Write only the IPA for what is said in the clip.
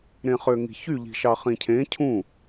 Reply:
ɾ ẽ χ ø ŋ i̤ ç y ʎ i̤ ʃ ɑ χ ĩ cʰ ẽ cʰ ũ

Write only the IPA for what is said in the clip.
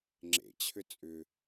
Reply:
ŋ͡ǁ ḛ t͡ɕʰ ʏ t͡sʼ ʏ

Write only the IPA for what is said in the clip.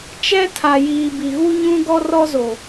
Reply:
t͡ʃ ɛ˦ tʰ a˨ j iː˨ b i˨ ɣ u˦ ɲ ũ˦ ɡ ɔ˦ r ɔ˦ z o˨

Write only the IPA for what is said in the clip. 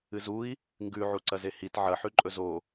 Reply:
ɨ z u i̯ | ŋ ɡ ʉ ʕ u ǀ ɐ z e h i t ʕ ɐ ħ ʉ ǃʼ ɵ z o

